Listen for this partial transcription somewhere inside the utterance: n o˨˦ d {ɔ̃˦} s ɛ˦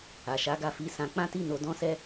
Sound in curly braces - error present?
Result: no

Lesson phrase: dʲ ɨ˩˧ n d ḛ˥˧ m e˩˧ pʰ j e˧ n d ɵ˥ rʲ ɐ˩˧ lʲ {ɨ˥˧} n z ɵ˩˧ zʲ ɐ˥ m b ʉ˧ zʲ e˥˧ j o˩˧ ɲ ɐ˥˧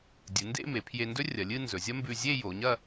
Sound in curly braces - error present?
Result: no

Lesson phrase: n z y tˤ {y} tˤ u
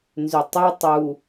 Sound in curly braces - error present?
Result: yes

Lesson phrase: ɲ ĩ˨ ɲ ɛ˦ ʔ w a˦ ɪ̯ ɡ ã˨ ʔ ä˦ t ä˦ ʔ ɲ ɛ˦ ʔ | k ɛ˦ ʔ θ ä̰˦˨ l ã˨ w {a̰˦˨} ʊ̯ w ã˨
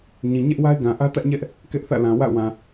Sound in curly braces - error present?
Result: no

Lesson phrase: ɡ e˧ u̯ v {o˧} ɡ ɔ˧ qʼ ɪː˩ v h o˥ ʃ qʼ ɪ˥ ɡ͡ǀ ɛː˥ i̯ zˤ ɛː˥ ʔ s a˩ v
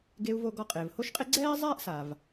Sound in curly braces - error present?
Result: no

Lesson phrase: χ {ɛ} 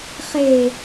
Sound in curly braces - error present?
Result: yes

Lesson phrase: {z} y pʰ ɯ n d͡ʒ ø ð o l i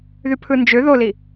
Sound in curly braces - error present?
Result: yes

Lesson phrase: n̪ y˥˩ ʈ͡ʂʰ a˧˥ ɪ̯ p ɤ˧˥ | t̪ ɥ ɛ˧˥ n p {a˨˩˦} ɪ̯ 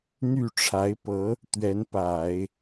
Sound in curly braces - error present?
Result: no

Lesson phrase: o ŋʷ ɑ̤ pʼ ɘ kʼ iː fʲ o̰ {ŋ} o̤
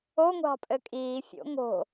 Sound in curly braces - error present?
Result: no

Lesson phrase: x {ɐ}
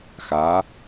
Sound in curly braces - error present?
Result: yes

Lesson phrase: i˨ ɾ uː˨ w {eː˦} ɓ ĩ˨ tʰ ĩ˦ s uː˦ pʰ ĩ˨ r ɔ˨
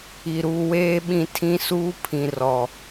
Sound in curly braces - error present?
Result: no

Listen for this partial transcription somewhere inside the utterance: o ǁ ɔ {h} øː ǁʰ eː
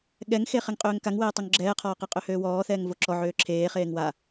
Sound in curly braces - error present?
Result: yes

